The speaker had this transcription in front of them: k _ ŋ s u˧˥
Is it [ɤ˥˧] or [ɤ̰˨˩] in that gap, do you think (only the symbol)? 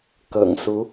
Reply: ɤ̰˨˩